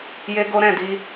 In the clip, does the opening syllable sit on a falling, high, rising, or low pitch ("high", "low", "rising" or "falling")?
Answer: high